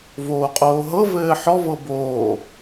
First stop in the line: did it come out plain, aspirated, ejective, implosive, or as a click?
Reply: ejective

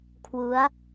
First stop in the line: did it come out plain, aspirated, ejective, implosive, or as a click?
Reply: aspirated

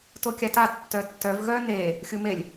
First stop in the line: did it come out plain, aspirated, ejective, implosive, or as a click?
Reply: plain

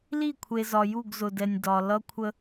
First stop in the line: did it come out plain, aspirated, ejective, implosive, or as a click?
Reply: aspirated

